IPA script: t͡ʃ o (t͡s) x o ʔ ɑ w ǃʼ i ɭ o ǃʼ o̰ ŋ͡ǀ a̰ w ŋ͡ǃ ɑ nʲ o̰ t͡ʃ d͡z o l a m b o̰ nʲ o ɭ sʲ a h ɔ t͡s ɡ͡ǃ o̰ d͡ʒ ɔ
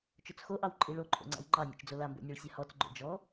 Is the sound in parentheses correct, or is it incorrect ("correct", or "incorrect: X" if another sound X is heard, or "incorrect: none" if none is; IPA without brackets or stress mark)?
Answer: correct